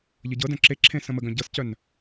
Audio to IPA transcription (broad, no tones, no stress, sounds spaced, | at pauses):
ʎ ɤ ɟ ɤ d œ̃ ǁ e ǁʰ ẽ s ə̃ m ə ɡ œ̃ ɟ ɤ s c œ n